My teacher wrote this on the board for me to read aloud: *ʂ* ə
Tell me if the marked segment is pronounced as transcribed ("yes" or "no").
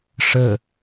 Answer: yes